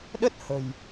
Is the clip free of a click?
yes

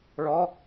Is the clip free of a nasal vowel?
yes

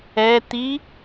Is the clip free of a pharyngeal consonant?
yes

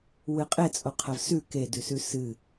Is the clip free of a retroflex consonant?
yes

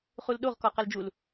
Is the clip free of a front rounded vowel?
yes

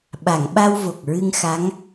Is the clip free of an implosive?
no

